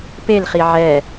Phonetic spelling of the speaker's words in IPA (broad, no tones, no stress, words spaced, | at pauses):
pelχi ʕɛ